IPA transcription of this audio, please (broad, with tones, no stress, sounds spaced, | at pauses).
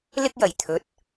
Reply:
l ɪ˥ k̚ j ɐ˨˩ j t̪ʰ ɵ˨˥ t̚